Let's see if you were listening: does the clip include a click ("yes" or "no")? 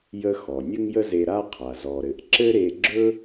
yes